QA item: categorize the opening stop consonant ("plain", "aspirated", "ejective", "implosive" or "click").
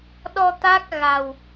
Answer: implosive